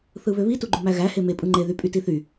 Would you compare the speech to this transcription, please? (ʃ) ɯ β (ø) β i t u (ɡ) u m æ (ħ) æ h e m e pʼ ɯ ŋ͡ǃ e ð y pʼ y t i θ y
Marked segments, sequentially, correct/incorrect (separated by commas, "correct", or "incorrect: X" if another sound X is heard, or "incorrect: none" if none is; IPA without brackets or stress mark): incorrect: θ, correct, incorrect: ɡ͡ǃ, incorrect: ɣ